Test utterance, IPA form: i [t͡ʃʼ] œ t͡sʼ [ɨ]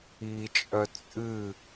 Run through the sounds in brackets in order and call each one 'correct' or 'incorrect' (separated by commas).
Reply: correct, correct